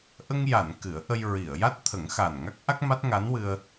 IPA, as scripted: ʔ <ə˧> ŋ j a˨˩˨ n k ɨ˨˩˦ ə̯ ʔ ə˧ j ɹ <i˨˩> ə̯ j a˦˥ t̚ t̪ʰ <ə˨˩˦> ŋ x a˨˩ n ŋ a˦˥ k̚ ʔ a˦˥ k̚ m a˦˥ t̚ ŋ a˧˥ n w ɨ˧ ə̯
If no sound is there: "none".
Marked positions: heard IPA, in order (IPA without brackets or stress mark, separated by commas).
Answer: ə˧, i˨˩˨, ə˨˩˦